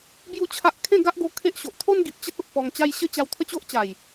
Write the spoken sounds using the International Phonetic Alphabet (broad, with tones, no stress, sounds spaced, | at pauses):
b j u˥˧ t͡ɕʰ a˦ ʔ kʰ ẽ˥˧ ɡ a˦ ʔ ɡ o˧ kʰ e˦ ʔ ɕ o˨ ʔ t̪ʰ o˦ n ɡ i˨ p̚ t͡ɕ ə˦ t̚ o˨ ʔ p ɔ˧ ŋ t͡ɕ a˦ j ɕ ə˦ t͡ɕ a˧ w t̪ʰ ə˦ t͡ɕ o˦ ʔ t͡ɕ a˨˩ j